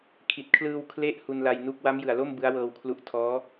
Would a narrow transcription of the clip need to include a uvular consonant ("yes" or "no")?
no